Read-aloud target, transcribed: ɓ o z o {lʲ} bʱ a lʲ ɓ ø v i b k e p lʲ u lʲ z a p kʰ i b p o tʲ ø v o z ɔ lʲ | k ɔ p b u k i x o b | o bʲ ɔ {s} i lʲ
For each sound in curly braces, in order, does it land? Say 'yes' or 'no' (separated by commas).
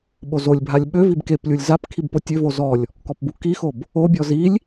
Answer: yes, no